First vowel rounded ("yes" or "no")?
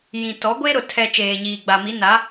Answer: no